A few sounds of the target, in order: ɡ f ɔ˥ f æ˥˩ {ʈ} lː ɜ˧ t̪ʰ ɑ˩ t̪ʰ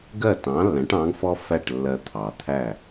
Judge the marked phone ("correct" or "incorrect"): correct